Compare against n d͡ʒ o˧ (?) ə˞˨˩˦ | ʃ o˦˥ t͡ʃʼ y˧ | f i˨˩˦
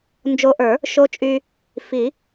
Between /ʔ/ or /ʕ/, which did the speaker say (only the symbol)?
ʔ